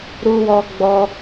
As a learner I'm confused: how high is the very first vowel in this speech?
high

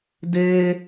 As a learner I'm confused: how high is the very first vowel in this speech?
mid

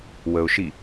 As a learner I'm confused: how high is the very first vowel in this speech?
mid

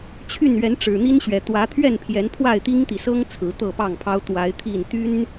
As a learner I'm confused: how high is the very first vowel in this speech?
high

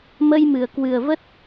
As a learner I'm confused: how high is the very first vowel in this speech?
mid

